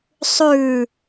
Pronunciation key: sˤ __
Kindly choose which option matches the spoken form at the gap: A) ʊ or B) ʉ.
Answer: B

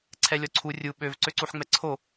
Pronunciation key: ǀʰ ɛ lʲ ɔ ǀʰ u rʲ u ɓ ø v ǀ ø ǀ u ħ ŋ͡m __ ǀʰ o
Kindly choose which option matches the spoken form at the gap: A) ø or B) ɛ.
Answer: B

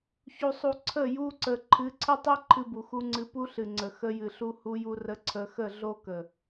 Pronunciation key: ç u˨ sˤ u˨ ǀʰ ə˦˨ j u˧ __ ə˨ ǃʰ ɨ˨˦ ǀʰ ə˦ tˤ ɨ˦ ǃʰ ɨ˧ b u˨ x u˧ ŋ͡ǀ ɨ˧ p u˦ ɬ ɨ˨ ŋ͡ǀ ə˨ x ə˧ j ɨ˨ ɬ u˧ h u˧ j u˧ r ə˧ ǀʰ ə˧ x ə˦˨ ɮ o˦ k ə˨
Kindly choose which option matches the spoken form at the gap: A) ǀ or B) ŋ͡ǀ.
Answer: A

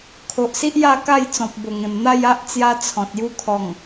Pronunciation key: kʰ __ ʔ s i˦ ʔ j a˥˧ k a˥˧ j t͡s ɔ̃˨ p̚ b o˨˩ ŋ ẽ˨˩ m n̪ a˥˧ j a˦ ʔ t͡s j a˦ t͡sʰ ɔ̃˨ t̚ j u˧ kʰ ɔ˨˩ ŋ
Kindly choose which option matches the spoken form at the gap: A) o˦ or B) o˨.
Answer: B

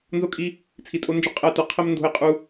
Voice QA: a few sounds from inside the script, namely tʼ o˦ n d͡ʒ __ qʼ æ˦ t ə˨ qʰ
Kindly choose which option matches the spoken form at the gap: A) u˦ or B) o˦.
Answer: B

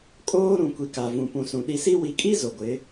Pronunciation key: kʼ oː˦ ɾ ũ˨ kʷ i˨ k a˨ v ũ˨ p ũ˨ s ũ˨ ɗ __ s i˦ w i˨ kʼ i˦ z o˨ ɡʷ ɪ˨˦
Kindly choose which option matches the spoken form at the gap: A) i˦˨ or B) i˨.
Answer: B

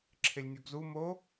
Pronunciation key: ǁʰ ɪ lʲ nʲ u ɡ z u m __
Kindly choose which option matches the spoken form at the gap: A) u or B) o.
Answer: B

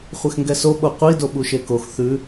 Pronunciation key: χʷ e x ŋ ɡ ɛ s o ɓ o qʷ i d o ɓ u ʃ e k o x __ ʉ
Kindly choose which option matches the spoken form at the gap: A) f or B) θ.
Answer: B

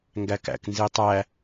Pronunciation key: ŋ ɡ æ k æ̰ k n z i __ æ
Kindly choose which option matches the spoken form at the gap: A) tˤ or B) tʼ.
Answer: A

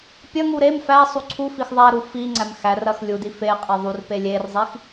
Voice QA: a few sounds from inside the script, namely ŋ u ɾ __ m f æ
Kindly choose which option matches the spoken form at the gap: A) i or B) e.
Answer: B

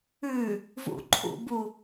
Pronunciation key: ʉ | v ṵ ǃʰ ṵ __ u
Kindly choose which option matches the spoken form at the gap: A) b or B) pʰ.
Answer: A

